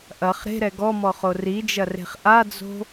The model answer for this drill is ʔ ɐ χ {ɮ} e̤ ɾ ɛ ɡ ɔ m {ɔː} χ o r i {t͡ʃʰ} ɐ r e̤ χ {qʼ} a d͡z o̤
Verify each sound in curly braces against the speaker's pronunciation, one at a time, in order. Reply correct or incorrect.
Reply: incorrect: ɾ, incorrect: ɔ, incorrect: d͡ʒ, incorrect: ʔ

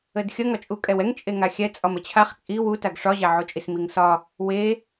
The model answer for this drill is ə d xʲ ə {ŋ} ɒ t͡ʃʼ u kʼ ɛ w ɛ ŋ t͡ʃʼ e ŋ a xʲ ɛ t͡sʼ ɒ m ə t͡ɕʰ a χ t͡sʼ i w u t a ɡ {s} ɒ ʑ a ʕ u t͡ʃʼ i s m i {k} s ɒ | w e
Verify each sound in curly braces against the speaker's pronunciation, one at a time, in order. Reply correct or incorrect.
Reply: correct, incorrect: ʂ, incorrect: ŋ

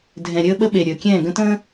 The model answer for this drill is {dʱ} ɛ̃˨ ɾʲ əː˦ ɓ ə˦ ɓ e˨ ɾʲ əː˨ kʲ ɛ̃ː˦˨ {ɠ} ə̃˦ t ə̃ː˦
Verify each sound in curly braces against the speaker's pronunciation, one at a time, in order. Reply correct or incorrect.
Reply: correct, incorrect: ɡ

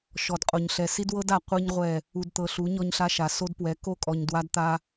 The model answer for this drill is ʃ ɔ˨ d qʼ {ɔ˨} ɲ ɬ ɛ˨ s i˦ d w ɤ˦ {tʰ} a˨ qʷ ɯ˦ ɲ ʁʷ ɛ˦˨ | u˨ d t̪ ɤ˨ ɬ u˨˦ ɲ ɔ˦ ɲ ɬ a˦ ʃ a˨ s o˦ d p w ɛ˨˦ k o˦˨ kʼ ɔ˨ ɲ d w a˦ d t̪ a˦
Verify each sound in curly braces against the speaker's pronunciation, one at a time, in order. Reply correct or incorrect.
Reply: incorrect: o˨, incorrect: d

